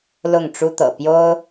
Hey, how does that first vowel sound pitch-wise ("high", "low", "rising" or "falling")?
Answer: falling